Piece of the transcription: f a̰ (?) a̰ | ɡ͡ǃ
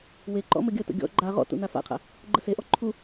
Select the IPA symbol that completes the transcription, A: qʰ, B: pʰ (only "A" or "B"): A